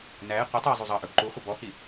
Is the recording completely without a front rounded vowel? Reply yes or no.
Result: yes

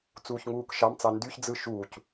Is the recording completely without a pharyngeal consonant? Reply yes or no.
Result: yes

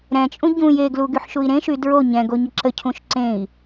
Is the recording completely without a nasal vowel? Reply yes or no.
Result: no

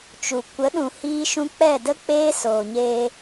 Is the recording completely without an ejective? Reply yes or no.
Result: yes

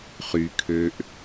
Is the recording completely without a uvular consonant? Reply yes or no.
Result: no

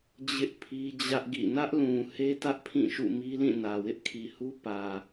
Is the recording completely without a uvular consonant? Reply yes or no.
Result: yes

